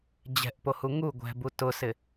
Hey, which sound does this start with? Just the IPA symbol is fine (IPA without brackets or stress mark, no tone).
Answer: d͡ʑ